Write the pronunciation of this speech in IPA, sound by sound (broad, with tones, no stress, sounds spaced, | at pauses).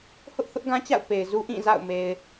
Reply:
h ʊ˦ ʔ θ ʊ˦ ʔ ɡ ã˦ t͡ɕ a̰˦˨ ʊ̯ p e˨ ɪ̯ z u˦ ʔ ĩ˦˨ z a̰˦˨ ʊ̯ m e˨ ɪ̯